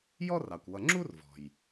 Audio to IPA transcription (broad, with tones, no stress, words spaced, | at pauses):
jɔ˥rɑ˩kʷwʌ˨ ŋ͡ǁu˥rvɔ̤˩j